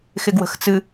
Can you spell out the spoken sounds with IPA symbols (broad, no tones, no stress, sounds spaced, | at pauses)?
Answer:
x ɪ ɡ w ə̤ x t͡s ɨ